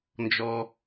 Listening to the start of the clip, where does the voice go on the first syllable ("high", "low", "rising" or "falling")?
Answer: low